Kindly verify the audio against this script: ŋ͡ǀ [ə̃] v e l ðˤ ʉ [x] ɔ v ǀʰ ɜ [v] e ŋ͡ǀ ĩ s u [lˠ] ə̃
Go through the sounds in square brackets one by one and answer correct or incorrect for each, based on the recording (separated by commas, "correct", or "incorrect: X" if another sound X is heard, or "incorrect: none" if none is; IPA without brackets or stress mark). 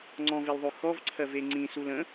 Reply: incorrect: ɔ̃, correct, correct, incorrect: l